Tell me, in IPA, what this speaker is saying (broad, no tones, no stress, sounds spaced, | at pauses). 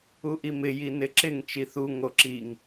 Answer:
u ʔ i m ɪ j i n ɪ ǁ ɪ ŋ t͡ʃ i θ u ŋ o ǁ i ŋ